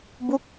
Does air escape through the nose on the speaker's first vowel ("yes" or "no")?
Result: no